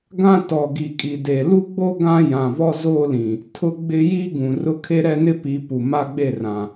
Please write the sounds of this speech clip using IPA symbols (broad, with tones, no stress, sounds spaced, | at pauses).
ɡ ã˦ t ɔ˨ ɡ i˨ kʼ i˨ d e˨ l u˦ ɡ͡b o˦ ɡ ã˦ j ã˨ v ɔ˦ z oː˦ l ĩ˨ | tʰ ʊ˦ ɡ͡b ɪ˦ j i˦ ɡ ũ˨ r ʊ˦ kʰ e˦ ɾ ɛ˦ n ɪ˦ p i˨˦ p u˨ m a˦ ɡ͡b e˦˨ r ã˨